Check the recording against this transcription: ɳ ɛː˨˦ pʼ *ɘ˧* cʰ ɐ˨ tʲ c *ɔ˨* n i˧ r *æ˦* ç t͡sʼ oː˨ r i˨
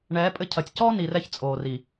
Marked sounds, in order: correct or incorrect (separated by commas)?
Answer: correct, incorrect, incorrect